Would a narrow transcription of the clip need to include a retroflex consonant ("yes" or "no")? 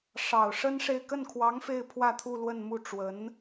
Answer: yes